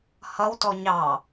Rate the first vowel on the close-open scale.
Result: mid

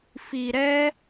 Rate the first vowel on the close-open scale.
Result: close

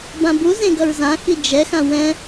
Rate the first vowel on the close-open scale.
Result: open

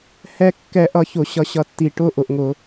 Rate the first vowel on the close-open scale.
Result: mid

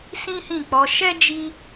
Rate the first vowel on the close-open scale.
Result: close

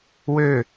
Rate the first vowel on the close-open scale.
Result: mid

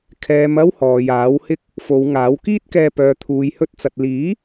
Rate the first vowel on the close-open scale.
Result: mid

